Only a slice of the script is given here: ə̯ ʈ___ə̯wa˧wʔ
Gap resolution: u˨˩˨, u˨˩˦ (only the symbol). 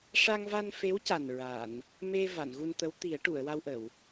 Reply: u˨˩˨